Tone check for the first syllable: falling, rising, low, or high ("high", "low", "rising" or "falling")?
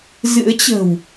rising